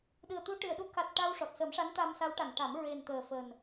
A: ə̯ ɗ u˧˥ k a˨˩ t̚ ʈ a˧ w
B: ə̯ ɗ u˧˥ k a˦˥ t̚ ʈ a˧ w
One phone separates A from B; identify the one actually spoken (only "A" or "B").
A